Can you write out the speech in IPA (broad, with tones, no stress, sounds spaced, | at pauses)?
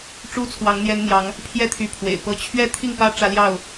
ʈ͡ʂ u˦ t͡sʰ w ɑ˨˦ ŋ n̪ j ɛ˦ n n̪ j ɑ˨˦ ŋ | pʰ j ɛ˥˨ t̪ʰ y˨˦ pʰ w ḛ˨˩ ɪ̯ p ɤ˦ t͡ɕʰ ɥ ɛ˥˨ t̪ʰ i˥˨ ŋ p ä˦ ʈ͡ʂ ä˦ l j ɑ˥˨ ʊ̯